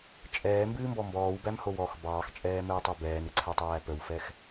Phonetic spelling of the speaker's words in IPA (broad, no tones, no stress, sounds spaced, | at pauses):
t͡ʃʼ ɛː m b ɨː m b ɔ m b ɔː w b æ m h o w ɔ x b ɑː x t͡ʃʼ ɛː m ɘː tˤ o b ɛː n ɨ ǀʰ æ tˤ æː p ə w f ɛ x